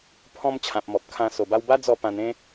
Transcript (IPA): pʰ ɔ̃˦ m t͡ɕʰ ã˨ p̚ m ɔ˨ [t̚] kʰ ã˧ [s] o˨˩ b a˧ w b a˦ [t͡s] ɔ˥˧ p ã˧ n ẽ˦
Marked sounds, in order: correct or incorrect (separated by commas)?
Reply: incorrect, correct, incorrect